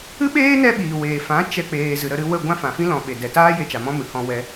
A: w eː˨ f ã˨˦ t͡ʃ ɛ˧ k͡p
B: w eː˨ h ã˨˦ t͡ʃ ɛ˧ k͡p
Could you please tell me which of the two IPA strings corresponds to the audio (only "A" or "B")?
A